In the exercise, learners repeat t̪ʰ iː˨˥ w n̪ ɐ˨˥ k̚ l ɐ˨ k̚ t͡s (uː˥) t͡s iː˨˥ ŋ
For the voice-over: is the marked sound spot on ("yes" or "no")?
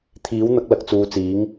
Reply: no